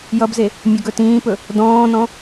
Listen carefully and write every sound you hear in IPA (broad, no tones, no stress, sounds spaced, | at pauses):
j ʌ b z e | mʲ ɵ ɡ ɵ t ĩː p ɵ | d ɔ̃ː n ɔ̃